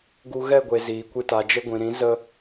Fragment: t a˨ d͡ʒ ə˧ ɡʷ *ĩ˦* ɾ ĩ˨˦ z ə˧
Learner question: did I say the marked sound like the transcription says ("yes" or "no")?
no